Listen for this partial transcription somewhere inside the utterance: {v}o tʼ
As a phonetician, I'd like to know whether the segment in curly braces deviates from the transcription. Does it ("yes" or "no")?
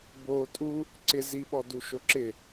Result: yes